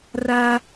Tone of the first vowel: high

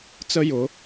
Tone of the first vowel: high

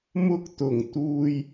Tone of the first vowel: high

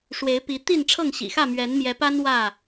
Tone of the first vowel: rising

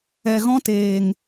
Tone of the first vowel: low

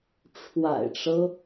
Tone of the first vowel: low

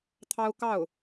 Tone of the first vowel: high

